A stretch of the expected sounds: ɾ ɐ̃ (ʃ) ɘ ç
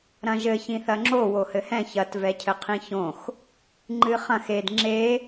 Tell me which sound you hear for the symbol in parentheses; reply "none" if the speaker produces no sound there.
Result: ʒ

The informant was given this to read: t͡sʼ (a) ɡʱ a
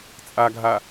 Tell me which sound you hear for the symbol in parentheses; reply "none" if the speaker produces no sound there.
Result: a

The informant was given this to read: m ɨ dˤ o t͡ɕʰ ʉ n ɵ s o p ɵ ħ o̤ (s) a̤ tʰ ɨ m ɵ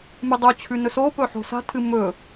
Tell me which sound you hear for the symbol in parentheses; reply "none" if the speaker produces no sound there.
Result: s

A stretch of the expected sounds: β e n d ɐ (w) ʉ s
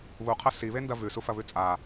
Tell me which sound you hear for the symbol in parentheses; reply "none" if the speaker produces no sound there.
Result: v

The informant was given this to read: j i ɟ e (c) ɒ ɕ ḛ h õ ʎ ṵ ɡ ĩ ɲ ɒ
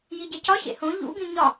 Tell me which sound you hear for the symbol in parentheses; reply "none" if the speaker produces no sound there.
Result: c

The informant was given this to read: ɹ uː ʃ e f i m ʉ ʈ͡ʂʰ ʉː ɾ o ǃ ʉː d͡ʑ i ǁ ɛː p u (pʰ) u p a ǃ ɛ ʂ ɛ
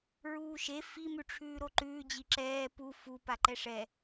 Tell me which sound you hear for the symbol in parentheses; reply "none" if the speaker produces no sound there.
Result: f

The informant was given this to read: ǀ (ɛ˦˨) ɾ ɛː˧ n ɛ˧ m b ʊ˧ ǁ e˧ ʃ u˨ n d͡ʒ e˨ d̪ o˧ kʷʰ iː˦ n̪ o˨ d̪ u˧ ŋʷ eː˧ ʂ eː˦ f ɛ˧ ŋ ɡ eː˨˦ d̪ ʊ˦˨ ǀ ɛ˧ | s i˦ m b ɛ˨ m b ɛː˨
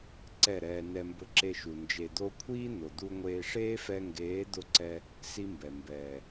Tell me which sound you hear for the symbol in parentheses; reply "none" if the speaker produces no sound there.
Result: ɛ˦˨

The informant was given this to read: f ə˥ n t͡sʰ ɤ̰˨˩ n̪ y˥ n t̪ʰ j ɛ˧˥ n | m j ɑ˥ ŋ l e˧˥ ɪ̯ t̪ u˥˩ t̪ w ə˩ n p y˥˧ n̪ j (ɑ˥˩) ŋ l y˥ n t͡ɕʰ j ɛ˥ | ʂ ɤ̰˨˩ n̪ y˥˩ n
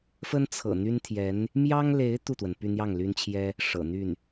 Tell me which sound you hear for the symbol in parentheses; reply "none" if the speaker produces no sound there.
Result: ɑ˥˩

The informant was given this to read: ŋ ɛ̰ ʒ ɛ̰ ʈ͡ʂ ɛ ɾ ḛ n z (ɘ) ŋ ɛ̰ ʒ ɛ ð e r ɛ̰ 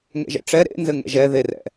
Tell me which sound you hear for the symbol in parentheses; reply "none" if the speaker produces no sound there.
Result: ɘ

